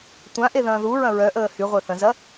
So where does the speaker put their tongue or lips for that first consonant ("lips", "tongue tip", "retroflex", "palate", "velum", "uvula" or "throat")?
tongue tip